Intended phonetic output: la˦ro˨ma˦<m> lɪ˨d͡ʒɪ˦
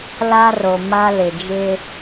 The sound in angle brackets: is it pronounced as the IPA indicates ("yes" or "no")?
no